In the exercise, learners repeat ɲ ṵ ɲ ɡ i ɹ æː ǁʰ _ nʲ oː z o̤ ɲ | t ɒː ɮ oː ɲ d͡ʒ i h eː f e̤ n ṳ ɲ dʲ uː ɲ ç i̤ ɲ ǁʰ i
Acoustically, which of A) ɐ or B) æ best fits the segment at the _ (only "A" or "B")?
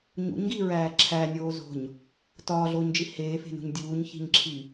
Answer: B